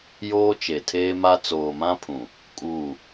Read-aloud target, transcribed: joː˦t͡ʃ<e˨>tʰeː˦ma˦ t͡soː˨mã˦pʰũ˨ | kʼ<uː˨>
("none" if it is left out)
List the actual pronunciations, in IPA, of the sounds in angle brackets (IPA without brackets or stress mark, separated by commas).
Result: e˨, uː˦˨